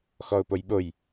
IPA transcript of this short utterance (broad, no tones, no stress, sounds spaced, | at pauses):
x ɔ ʊ̯ p o j ɓ o j